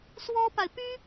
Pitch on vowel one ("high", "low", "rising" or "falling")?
high